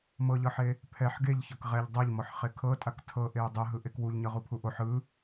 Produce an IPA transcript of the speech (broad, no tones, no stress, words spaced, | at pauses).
mɤʎɤħe | pʰɛħ ɡeʎçɤk ʁɛʎ dˤɤʎmɔħχe kʰɤtʼak tʰɤʔeu̯ dˤɯɦɯʔek wuʎɲɤʁupʰu ʔoħ ɯ